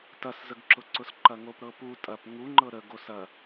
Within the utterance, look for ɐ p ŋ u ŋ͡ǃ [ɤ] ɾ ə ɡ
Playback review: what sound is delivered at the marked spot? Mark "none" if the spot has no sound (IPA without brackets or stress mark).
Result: ɤ